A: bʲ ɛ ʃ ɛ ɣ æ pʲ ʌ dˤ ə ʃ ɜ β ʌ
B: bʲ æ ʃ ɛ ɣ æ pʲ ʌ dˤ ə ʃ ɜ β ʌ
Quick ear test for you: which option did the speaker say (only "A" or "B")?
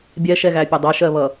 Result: A